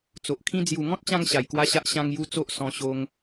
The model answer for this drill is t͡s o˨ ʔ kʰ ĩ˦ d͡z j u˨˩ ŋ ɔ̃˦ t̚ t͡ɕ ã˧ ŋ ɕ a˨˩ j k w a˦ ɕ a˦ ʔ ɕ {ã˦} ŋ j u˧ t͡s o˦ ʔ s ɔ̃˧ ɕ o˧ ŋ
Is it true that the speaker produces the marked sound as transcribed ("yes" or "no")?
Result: no